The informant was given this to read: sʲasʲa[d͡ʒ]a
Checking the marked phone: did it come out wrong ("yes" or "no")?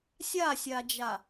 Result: no